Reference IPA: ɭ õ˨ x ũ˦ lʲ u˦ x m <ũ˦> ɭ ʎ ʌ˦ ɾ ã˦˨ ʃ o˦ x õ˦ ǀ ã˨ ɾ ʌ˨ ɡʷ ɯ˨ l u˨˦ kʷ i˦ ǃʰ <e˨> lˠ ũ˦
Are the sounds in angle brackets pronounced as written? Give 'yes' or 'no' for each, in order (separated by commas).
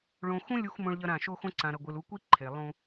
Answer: no, yes